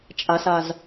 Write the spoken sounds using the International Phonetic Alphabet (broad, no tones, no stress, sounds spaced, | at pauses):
t͡ʃʼ a s a z